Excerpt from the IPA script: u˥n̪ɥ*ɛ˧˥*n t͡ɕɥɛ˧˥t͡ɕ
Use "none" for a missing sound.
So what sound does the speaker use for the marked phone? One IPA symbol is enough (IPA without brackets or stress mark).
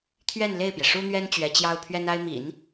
ɛ˥